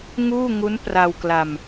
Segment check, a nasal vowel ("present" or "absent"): absent